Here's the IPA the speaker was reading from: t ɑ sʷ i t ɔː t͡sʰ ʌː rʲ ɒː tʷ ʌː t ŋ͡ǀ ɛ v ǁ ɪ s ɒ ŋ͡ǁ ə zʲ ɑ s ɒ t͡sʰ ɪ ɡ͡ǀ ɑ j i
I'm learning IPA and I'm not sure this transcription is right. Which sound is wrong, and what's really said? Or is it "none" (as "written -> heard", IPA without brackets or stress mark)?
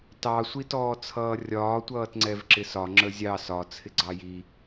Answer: none